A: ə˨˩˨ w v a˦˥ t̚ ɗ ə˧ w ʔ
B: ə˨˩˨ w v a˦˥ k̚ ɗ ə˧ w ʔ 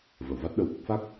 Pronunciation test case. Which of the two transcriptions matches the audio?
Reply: A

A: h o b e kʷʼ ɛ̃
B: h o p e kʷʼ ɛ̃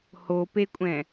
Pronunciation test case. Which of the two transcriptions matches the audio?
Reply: B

